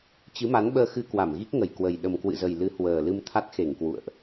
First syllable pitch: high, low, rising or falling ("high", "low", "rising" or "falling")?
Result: rising